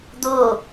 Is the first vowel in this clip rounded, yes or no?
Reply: yes